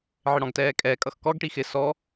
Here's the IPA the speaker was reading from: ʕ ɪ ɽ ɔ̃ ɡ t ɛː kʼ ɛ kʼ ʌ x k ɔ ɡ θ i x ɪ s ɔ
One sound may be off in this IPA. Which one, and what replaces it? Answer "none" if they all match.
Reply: θ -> ʈ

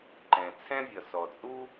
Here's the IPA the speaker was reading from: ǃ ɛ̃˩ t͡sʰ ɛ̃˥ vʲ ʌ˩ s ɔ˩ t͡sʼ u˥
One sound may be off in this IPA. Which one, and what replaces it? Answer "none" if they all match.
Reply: none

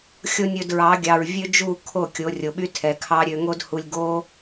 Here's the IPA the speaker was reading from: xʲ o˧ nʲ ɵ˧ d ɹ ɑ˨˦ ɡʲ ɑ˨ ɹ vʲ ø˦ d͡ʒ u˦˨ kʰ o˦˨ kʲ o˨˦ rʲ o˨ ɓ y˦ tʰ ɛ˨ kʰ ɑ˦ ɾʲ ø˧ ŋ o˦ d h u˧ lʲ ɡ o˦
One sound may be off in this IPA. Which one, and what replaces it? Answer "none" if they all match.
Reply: none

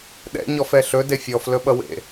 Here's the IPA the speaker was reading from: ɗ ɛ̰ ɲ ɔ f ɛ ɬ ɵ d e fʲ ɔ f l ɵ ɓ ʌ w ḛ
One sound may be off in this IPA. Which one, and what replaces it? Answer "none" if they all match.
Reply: none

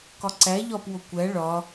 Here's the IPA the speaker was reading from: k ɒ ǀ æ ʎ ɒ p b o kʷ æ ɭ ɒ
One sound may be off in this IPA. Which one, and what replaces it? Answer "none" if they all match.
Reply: b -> w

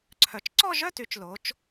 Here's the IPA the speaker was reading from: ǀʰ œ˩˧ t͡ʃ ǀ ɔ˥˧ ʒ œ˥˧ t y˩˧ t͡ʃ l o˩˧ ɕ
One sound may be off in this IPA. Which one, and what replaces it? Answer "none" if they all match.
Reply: ɕ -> t͡ʃ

